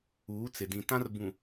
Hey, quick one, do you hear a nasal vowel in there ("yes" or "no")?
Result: yes